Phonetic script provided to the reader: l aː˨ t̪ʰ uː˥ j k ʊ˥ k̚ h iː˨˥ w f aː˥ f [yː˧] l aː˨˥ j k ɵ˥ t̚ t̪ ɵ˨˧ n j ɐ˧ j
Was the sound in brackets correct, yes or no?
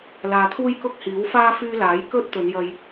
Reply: yes